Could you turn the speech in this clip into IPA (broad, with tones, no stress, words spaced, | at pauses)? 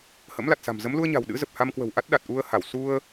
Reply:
hə̰˧˥mla˨˩t̚sa̤˨˩mzə˨˦m lu˧ə̯ɲa̤˨˩w ɗɨ̰˧˥zə˨˩p̚ ha˧mkwə̤˨˩wʔa˦˥t̚ ɗa˨˩t̚ʔu˧ə̯ha˧˩w su˧ə̯